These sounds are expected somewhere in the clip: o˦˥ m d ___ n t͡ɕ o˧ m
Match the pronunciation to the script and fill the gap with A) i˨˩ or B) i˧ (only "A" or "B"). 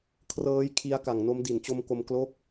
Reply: A